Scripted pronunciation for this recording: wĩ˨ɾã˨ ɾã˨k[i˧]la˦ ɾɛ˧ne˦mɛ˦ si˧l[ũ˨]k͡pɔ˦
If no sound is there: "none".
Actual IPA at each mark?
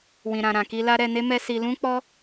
i˧, ũ˦

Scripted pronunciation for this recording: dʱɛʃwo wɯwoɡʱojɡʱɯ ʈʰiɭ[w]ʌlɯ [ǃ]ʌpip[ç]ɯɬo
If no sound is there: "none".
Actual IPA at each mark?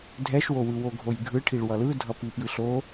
w, dʱ, j

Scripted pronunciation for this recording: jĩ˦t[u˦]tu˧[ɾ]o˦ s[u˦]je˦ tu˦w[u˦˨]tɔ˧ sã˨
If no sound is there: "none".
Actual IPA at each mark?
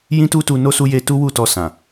u˦, n, u˦, u˦˨

